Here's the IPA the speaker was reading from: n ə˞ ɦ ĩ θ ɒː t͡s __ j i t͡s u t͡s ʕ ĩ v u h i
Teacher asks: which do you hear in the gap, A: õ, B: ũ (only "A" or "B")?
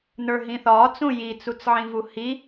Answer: B